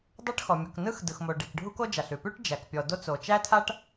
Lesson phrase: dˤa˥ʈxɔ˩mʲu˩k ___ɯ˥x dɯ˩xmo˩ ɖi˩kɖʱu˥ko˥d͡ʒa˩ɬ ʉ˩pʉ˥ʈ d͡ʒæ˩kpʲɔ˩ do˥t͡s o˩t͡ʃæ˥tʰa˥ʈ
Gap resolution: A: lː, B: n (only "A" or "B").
B